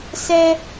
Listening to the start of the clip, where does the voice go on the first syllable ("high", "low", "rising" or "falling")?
high